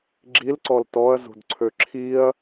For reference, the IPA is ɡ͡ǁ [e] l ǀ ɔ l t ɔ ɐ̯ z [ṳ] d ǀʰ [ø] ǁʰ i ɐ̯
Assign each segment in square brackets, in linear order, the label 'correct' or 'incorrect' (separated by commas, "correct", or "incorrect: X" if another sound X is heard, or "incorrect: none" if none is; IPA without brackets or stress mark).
incorrect: i, correct, correct